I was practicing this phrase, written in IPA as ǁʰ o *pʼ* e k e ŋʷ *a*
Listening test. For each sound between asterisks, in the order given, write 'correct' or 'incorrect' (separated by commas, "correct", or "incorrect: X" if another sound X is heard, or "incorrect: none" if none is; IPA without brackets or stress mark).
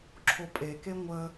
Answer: correct, incorrect: ə